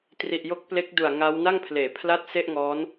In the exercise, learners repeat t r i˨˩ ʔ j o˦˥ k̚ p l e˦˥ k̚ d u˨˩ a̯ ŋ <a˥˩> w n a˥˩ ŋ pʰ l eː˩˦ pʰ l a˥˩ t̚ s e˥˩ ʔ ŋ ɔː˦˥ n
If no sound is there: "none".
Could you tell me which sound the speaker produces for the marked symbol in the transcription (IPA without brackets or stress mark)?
a˦˥